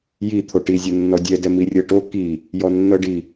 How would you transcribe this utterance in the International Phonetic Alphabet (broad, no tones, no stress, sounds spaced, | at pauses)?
j i t̪ʰ o ʈ i zʲ ɤ nː ɔ dʲ ɛ d ɛ m i rʲ ɤ ʈ o k i | j ɔ nː ɤ ɖ i